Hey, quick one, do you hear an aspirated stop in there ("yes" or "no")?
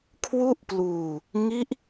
yes